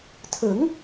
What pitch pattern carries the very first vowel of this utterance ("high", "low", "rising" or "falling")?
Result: rising